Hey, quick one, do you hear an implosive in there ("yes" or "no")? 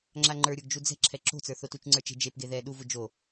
yes